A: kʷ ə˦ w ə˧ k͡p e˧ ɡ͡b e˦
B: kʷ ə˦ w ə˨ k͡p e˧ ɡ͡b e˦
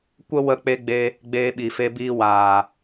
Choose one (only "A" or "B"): A